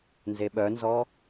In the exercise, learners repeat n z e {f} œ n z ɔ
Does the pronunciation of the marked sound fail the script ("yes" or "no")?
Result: yes